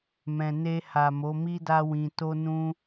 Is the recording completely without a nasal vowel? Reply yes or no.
no